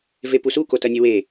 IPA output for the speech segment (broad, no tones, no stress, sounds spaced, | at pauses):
v e p u s u k o t ɐ nʲ ɐ w e